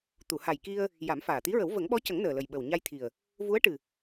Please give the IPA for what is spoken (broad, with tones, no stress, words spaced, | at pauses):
t̪u˨˩˨ha˨˩j ki˧ə̯ | ja˨˩˦mfaː˨˩t̪i˧˥ɹə˨˩˦w və˨˩˦ŋɓɔ˧˥cə˨˩˦ŋ nəː˨˩lə˨˩j ɓə˨˩wɲa˧jt̪ʰi˨˩ə̯ | vu˧˥ə̯ʈɨ˨˩